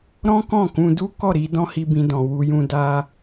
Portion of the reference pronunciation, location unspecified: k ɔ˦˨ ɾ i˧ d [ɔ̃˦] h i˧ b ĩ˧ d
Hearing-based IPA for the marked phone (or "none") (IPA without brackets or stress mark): ɔ̃˦